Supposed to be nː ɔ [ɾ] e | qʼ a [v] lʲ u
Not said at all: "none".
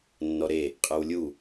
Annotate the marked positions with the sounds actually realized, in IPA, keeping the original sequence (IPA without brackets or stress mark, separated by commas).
ɾ, w